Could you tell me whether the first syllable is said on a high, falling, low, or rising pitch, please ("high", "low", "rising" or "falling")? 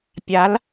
rising